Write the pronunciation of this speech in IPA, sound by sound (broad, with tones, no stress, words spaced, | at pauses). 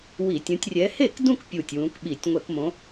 wi˧˩˧tʲũ˨˦tʲ rʲɛ˨˦he˥˩kdũ˥˧k pʲu˧˩tʲ wũ˨˦kɓi˧˩˧tʲ ŋʷɛ˧˩˧kmõ˨˦